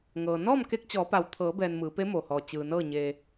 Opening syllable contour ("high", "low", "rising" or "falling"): low